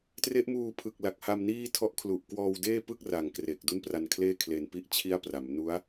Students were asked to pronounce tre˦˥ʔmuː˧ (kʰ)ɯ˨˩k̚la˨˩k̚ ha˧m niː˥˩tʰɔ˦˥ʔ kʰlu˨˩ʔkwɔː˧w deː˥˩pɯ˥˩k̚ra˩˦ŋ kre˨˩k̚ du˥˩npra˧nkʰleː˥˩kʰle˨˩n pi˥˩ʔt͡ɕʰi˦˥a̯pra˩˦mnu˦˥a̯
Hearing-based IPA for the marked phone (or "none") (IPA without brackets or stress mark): pʰ